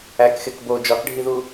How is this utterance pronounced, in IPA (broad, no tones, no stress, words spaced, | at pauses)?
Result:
ækxek bo d͡ʒɒkɖʱiðu